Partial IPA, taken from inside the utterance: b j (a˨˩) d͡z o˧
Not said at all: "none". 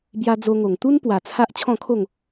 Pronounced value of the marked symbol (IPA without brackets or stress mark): a˧